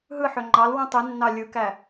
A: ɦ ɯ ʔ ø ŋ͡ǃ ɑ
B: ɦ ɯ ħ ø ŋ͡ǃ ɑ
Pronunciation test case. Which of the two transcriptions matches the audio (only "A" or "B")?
B